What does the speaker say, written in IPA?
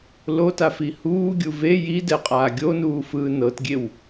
l o t a f i h uː ɡʲ u v e j i d ɛ qʼ aː ɡʲ o n uː f ɯː n ɤ t ɡʲ e w

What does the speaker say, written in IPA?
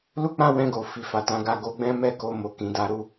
l u˦ k͡p ã˦ w ɛ̃˧ ɡ o˨ f i˨ f a˨ t ã˨˦ ɡ a˧ ɡ o˧ ɡ͡b ɛ̃˦ m ɛ˦˨ k o˧ m o˨ k ĩ˨ d a˧ ɾ u˧

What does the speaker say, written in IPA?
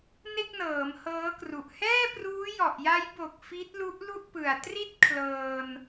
n e˥˩ k̚ n ɤː˩˦ m h ɤː˦˥ k r u˨˩ ʔ h ɛː˥˩ p r uː˦˥ j ɔ˨˩ ʔ j a˦˥ j b o˨˩ k̚ f i˦˥ t̚ l u˦˥ ʔ l u˥˩ ʔ p ɯ˨˩ a̯ t r i˥˩ t̚ kʰ l ɤː˧ n

